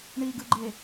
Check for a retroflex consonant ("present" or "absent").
present